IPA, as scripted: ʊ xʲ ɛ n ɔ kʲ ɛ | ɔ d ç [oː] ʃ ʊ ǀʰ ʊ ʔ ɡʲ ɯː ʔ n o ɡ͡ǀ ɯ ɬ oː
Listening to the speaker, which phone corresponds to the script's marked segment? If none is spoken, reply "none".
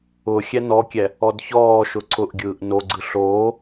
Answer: ɔː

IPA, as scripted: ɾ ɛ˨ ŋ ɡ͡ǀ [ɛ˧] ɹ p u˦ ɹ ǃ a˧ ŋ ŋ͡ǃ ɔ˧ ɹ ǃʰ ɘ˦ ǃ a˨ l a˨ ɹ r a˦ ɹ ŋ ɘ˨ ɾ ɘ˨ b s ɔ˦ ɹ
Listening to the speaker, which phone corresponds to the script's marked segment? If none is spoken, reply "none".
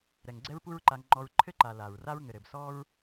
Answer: ɛ˦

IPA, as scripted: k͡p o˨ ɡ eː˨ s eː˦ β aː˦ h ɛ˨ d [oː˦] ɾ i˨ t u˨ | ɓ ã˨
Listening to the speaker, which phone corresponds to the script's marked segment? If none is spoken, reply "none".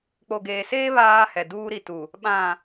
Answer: uː˦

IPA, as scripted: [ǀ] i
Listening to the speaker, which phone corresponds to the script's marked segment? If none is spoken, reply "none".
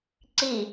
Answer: ǀ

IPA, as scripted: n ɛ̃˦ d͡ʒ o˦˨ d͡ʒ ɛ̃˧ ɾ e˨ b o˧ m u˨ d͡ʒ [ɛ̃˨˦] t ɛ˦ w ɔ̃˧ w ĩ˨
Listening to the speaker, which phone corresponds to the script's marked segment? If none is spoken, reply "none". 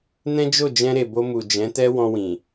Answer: ɛ̃˨˦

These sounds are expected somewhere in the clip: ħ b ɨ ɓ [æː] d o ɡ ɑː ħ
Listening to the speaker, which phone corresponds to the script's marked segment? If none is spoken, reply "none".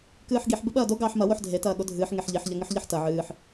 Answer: ɐː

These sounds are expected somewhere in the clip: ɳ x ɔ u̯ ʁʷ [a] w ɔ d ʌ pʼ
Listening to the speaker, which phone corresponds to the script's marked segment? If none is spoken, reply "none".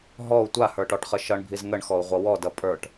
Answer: ʌ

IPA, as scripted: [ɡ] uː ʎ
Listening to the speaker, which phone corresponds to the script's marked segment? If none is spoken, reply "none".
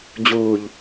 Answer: d͡ʑ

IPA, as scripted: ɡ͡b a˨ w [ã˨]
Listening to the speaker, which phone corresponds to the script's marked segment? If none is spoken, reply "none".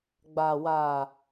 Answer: a˨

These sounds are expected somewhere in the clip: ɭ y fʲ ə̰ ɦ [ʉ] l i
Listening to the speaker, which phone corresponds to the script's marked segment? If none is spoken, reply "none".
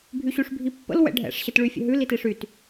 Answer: ʉ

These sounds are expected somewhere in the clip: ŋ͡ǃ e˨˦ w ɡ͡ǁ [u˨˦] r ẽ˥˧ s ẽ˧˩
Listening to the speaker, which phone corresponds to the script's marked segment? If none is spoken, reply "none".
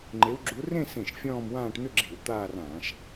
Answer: u˨˦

